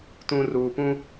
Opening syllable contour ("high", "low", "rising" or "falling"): low